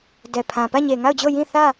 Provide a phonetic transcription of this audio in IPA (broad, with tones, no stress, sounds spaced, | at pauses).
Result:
d ɛ˨ pʰ ã˨ p ä˦˨ ɲ e˨ ŋ a˦˨ ʊ̯ d͡ʑ o˦˨ j ĩ˦˨ θ ä˦˨